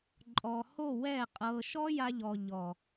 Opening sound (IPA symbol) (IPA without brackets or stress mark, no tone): ǃʼ